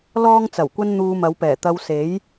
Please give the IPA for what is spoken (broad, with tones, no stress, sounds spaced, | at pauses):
l ɔː˥ ŋ t͡s ɐ˨˩ w kʷ ɐ˥ n n̪ uː˧ m ɐ˨˧ w p ɛː˨˩ t̪ ɐ˧ w s e˨˥ j